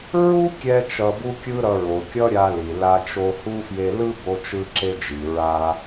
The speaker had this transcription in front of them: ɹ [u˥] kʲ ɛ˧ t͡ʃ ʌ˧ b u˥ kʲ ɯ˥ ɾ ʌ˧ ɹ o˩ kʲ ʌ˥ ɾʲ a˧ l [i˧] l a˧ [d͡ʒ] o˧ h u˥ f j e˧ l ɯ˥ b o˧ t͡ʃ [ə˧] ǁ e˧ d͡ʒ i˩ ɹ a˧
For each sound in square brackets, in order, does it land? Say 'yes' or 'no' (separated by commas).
yes, no, no, no